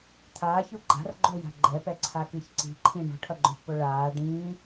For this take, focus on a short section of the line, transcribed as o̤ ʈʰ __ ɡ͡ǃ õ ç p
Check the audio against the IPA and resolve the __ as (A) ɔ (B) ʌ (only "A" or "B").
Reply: B